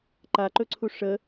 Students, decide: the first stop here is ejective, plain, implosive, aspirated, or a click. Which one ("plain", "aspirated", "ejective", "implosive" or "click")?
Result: click